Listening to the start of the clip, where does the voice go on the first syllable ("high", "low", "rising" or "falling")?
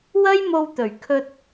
high